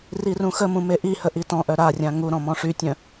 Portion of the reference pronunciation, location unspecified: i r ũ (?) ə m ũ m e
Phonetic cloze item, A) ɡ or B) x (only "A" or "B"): B